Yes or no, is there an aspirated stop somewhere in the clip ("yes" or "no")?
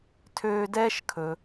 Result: yes